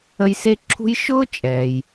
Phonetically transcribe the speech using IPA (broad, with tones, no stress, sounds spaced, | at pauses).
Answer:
ə˦ j s e˥ ǁʰ ṳ˥ j ʃ ʊː˥ t͡ʃʼ ɛː˩ j